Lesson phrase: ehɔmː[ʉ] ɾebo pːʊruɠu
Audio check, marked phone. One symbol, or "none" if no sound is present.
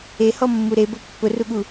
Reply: u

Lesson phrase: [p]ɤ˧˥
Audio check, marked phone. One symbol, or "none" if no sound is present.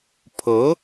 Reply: pʰ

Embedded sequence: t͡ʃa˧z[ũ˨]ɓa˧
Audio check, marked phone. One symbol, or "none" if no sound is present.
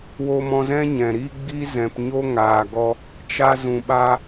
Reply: ũ˨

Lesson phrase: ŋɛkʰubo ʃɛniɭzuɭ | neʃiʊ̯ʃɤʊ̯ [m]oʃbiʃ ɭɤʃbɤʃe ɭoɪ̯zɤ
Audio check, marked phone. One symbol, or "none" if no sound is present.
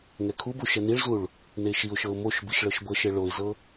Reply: m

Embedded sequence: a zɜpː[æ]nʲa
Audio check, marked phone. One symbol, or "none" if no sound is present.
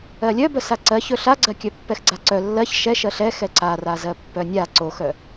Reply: œ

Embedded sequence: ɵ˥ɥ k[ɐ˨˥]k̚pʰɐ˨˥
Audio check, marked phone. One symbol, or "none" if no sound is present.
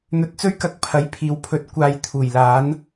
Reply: ɐ˧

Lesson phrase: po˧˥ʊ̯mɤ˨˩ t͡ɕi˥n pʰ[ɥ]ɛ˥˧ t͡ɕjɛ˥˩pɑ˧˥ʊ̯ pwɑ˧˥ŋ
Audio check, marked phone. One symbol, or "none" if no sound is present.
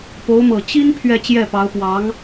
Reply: ɥ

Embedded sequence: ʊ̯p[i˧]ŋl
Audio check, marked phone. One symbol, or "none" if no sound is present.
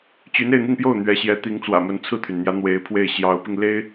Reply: i˧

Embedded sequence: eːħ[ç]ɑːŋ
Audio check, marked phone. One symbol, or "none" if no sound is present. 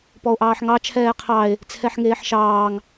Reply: ʃ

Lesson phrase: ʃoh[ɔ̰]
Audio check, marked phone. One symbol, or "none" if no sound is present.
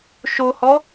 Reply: ɔ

